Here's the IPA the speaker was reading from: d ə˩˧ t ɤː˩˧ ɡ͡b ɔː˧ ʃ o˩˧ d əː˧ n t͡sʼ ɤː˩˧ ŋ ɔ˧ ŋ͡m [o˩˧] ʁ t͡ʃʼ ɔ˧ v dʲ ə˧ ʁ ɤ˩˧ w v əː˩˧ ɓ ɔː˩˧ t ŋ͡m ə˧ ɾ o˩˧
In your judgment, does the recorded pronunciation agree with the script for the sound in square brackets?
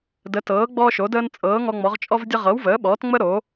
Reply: no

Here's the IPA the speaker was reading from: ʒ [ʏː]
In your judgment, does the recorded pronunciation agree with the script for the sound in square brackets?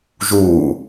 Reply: no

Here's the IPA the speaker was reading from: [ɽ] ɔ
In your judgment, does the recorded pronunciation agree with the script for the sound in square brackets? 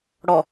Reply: yes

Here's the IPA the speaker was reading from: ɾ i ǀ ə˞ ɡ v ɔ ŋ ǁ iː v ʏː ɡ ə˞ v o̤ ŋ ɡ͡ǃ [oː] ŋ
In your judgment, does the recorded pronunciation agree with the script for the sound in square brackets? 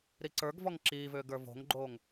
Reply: yes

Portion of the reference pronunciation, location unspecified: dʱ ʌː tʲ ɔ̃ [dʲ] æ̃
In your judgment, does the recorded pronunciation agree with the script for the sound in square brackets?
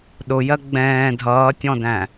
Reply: no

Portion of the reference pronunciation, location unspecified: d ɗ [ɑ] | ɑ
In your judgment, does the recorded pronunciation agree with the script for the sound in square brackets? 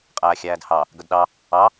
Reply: yes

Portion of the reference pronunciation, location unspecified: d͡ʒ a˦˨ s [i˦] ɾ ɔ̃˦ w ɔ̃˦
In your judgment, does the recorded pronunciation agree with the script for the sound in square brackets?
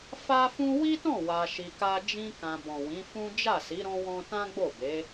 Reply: no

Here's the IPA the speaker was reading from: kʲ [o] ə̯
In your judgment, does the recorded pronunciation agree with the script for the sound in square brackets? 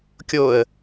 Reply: yes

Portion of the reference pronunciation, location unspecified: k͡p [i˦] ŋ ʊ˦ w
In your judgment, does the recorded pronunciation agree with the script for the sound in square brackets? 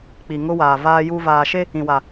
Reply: no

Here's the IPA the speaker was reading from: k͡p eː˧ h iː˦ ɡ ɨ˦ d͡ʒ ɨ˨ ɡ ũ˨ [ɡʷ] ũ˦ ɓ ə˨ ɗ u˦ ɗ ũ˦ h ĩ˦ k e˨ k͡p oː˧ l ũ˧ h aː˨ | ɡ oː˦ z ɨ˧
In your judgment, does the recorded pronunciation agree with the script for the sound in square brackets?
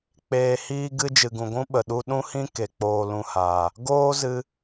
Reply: yes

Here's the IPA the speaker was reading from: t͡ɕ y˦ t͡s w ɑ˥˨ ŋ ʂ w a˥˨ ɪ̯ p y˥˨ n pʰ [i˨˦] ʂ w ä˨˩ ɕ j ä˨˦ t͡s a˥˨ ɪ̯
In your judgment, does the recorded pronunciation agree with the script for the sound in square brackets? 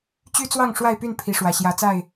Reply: yes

